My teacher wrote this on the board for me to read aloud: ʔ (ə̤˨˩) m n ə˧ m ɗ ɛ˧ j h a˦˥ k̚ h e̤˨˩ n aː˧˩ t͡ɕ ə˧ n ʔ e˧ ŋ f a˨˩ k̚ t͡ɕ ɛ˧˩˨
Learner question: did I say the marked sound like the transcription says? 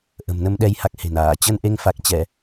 yes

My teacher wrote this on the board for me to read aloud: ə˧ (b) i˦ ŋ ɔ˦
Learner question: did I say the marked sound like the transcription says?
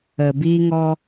yes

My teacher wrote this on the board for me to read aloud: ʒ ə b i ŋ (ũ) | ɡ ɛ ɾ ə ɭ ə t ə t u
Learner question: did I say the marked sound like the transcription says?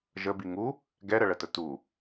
no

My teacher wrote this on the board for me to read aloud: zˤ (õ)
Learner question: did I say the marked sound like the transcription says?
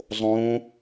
yes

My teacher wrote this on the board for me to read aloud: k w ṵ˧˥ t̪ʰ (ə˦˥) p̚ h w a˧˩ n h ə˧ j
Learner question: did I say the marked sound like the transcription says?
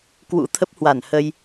yes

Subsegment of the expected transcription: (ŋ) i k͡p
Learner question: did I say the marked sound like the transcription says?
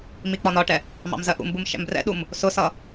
no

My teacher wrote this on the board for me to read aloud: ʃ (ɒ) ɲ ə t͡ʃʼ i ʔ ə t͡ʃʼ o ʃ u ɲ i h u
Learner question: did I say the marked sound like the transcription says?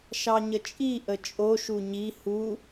no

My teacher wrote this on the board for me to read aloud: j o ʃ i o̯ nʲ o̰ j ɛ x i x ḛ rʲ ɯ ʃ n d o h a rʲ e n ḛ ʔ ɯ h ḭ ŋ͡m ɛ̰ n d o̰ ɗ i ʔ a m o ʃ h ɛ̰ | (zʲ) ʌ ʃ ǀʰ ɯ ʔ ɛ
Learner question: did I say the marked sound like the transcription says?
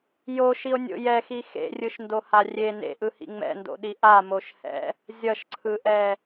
yes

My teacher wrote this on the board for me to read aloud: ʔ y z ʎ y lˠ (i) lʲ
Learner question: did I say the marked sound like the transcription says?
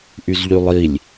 yes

